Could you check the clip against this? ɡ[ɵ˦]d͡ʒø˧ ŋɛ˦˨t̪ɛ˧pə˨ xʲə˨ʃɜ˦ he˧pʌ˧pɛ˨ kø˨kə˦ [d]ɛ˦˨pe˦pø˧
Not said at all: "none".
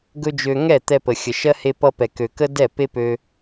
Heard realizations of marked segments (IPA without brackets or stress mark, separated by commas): ɵ˦, d